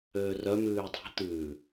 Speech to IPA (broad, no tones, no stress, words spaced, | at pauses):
øːrœ mʉːdˤæ̤ t̪ʉː